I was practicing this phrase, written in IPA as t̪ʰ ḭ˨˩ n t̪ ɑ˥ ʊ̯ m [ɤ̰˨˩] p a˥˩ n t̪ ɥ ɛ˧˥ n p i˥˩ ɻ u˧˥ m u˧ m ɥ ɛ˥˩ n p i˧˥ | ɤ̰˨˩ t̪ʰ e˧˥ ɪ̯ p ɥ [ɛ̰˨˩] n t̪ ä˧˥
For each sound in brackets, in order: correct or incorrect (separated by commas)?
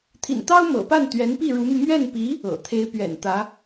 correct, correct